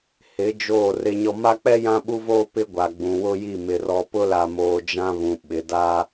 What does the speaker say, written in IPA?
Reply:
h ɪ˨˦ d͡ʒ oː˦˨ r ɪ˦ ɲ ɔ˦ m a˦ k͡p ɛ˦ j ã˦ ɓ u˦ v oː˦ p ɪ˦ ɡʷ a˨ ɡ͡b ũ˨ w ʊ˦ j i˦˨ m ɪ˨ r ɔ˨ p ʊ˦ l a˨ m oː˨ d͡ʒ ã˦ β ũ˨ ɓ ɪ˨ d a˦

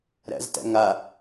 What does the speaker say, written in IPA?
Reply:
ɾ æ̰ z t æ̰ ŋ a

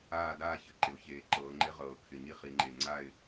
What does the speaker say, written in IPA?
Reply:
aː˥˧ d aː˥˧ ç ɘ˨˩ ǃ ɪ˩˧ ʊ̯ ç eː˨˩ ǃ ɤː˩˧ ŋ͡ǃ ɪ˧˥ ʁ ɤː˨˩ kʰ ɪ˨˩ ɲ i˧˥ χ i˩˧ ŋ͡ǃ e˨˩ ŋ͡ǀ a˥˧ ɪ̯

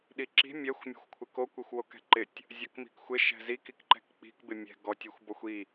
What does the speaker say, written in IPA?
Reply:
ɗ i ǁ i̤ mʲ ɛ xʷ mʲ ɔ̤ xʷ kʷʰ ɪ k o kʷ e xʷ w o k ɛ̤ ǃ ɪ tʲ | zʲ ɔ k m i̤ k xʷ ɪ ʃ ɛ̤ z i k i k ǃ ɛ̤ k k͡p i̤ k b ɪ mʲ ɛ̤ ɡ ɔ tʲ i xʷ b ɔ xʷ i

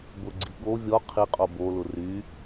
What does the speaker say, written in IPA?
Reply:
b ʊ ɡ͡ǀ i ɠ o vʲ ɔ qʰ i qʼ o b o l ʊ r y

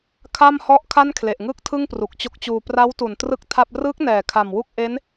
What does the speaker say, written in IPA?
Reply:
kʰ a˥˩ m h ɔ˥˩ ʔ kʰ a˥˩ n kʰ l e˨˩ ʔ ŋ ɯ˥˩ k̚ tʰ ɯ˥˩ ŋ p r u˨˩ k̚ t͡ɕ o˦˥ k̚ t͡ɕ uː˧ p r a˦˥ w t u˨˩ n t r ɯ˥˩ k̚ tʰ a˥˩ p̚ r ɯː˦˥ k̚ n ɛː˨˩ kʰ a˨˩ m w u˥˩ k̚ ʔ e˦˥ n

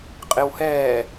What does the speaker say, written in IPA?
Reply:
qʼ ɪ w h ɛː

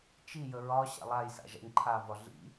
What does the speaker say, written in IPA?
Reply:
t͡ʃ i j ə ɹ ɒ ɕ a̰ lˠ a j s a̰ ʒ a̰ ɲ ǃʰ a v ɒ ɮ ḭ

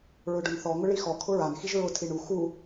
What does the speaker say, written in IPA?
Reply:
ɹ ʊ ɖ ʊ n θ ɔ ŋ ʊ ɭ i x ɔ kʰ ʊ ɹ a n x i ʒ ɹ ʊ tʰ i ɳ u x u

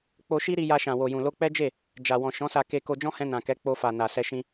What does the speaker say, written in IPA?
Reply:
k͡p o˧ ʃ i˦ ɾ i˧ j a˧ ʃ ã˨ w o˨ j ũ˨ l o˧ k͡p ɛ˦ d͡ʒ e˦˨ | d͡ʒ a˨ w ɔ̃˨ ʃ ɔ̃˨˦ s a˧ k e˧ k o˧ d͡ʒ ɔ̃˦ h ɛ̃˧ n ã˨ k ɛ˨˦ k͡p o˧ f a˨ n a˨ s ɛ˧ ʃ ĩ˧

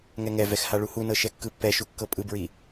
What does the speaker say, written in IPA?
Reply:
ŋ ɛ ŋ ɛ v ɛ x h a ɭ u h u n ɤ ʃ ɛ kː ɯ pː ɛ ʃ u kː ɤ pʼ ɯ b ɹ i

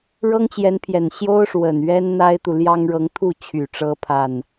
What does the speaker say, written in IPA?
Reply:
ɻ ɤ˥ ŋ t͡ɕ j ɛ˧˥ n pʰ j ɛ˨˩ n ɕ j o˥ ʊ̯ ʂ w ə˨˩ n ɥ ɛ˥ n n̪ a˥ ɪ̯ t̪ u˨ l j ɑ˥ ŋ ɻ ɤ˧˥ ŋ t̪ʰ u˥˩ t͡ɕʰ y˨˩ ʈ͡ʂ ɤ˧˥ pʰ a˥˩ n

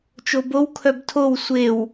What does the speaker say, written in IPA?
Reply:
t͡ʃ o b o w kʰ œ b tʰ o w sʷ e w

